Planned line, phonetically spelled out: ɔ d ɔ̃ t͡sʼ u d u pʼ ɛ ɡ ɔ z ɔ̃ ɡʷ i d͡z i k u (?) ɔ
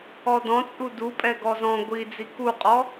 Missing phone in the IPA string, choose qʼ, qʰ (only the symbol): qʼ